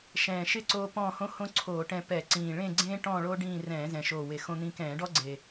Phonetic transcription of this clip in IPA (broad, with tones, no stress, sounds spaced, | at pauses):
ʃ ɛ̃ː˨˩ ʃ ɪ˥˧ ǀ oː˧ p ɔ̃ː˥˧ h õ˥ h õ˥ ǀʰ oː˧˩˧ ʈ ɛ̃˧ p ɛ˧˩˧ ǀ ĩː˨˩ ɭ ẽ˥˧ ɡ͡ǀ ẽː˥ ʈ ɔ̃ː˥˧ ɭ oː˥ ɖ ĩː˥˧ r ɛ̃ː˧˩˧ z ɛ̃˨˩ ʃ oː˨˩ w e˨˩ x õ˧ n̪ ĩ˧ k ɛ̃ː˧˩˧ ɖ ɔ˥ ɡ͡ǀ e˨˩